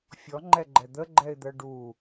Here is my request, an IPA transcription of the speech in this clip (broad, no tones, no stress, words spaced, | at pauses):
fʲɔŋ͡ǃɛɡ͡ǃɛ d̪əɡ͡ǃɛɪ̯d̪ɜ ɖu